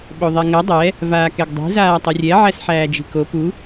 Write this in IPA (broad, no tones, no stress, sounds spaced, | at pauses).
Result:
ɓ o ðˤ ɛ ŋ ɐ dˤ ɛ | v aː k ɛ ɡ dˤ i̤ z aː tˤ ɐ rʲ ɛ ʕ æ s ħ æː d͡ʒ i̤ k o p u